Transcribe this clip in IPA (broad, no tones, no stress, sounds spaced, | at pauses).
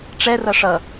ʈ͡ʂ ɛ r ʌ ʂ ʌ